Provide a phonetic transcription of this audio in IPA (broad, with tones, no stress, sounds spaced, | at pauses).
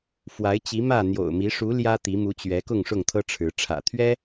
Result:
f w a˨˦ ɪ̯ t͡ɕ i˨˦ m ä˥˨ n̪ j o̰˨˩ ʊ̯ m i˨˦ ʂ u˨˦ l j ä˦ t̪ i˨˦ m u˨˦ t͡ɕ ɥ ɛ˨˦ k ʊ˥˨ ŋ ʂ ʊ˥˨ ŋ t̪ʰ ɤ˦ ʈ͡ʂʰ ɻ̩˨˦ ʈ͡ʂʰ ä̰˨˩ t̪ʰ ɥ ɛ˦